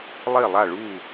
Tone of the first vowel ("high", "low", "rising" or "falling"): falling